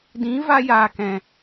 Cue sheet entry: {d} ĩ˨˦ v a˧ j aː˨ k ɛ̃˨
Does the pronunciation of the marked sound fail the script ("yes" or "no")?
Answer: no